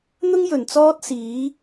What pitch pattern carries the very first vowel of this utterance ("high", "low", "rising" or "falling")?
high